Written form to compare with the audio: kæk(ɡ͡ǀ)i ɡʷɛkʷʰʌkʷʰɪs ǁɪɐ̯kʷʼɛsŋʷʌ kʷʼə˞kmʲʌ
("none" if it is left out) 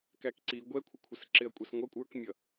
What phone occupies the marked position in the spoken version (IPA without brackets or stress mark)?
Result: ǀ